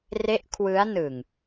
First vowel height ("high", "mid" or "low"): mid